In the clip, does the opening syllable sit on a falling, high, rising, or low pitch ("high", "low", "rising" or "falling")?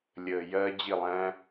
low